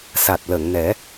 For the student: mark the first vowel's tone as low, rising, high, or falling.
low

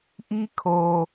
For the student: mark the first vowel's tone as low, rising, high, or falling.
high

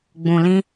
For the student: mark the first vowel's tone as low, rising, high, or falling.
low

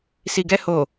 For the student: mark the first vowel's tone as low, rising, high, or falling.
low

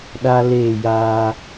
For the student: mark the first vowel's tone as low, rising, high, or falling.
high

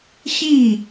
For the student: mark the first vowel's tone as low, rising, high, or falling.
falling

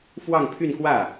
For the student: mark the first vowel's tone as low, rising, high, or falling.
falling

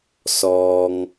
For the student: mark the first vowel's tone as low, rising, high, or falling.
low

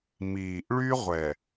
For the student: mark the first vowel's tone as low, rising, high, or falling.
low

